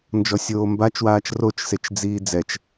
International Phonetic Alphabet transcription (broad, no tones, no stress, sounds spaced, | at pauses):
n d͡ʒ ɔ sʲ oː m b a t͡ʃ w aː t͡ʃ r o t͡ʃ s e t͡ʃ d͡z iː d͡z ɛ t͡ʃ